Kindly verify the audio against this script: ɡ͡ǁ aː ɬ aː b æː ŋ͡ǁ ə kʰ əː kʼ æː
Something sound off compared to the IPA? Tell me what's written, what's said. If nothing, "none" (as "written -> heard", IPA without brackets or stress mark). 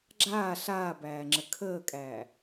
none